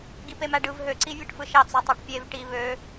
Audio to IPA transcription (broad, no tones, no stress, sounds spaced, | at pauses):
ɡ i p e m æ ɖ ɯ v ɦ ø ǀ i vʲ ɯ ʈ f ɯ ʃ ɑ t͡s o tˤ æ ʈ pʲ e v ʈ i β ø